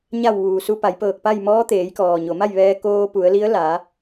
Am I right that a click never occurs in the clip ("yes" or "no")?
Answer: yes